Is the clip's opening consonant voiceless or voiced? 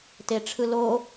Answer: voiceless